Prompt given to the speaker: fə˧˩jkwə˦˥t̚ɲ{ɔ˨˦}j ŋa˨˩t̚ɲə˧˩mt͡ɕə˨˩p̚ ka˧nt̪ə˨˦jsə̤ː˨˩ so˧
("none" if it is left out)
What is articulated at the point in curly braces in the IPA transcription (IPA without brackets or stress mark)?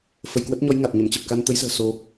ɔ˨˦